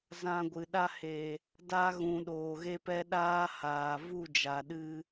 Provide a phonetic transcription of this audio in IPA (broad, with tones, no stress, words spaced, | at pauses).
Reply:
zã˧ɡʷɨ˨ ɗa˧he˨ | da˧ɣũ˨ ɗoː˨ɣe˦pɛ˦ ɗaː˦haː˨ vu˦˨d͡ʒa˨ ɗɨ˦